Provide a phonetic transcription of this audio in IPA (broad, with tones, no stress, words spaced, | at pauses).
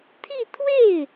t̪ʰi˥˧t̪ʰwe˥˩ɪ̯